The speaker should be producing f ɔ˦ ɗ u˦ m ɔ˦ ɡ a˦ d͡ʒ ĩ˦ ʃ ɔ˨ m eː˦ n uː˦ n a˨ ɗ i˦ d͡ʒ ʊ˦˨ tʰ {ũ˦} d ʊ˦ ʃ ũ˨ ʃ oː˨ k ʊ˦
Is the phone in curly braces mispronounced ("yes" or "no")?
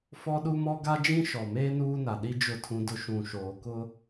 no